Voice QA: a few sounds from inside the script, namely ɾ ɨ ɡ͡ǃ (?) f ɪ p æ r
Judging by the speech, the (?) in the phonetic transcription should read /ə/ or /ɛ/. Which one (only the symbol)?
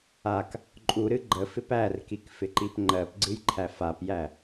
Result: ə